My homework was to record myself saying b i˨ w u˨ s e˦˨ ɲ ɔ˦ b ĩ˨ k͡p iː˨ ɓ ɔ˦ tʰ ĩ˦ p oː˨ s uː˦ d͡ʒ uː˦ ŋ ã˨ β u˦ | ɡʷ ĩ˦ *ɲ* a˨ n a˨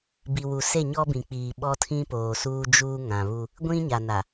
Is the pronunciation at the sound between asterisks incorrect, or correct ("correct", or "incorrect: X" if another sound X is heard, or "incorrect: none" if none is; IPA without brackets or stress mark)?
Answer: correct